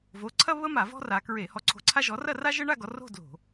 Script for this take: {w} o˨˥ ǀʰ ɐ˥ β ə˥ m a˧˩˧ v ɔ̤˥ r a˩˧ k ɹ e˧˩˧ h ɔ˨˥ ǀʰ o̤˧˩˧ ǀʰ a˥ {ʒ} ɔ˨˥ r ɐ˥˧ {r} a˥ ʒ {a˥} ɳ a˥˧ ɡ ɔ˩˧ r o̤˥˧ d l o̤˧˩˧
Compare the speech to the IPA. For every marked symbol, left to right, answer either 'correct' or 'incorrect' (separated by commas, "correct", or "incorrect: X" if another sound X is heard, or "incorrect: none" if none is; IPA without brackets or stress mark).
incorrect: v, correct, correct, incorrect: ə˥